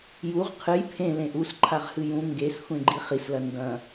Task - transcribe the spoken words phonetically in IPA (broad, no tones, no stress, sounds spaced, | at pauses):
j u ʁ qʰ ɨ j pʰ ẽ l ẽ ʔ u s ǃʰ a ʁ h ɨ j ũ ŋ ɡ e s xʷ ẽ ɡ͡ǃ i χ i s l ɐ n d ɐ̃